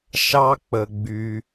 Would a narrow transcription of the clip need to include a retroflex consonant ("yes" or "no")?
no